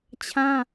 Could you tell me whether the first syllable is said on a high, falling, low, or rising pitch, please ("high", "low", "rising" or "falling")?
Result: high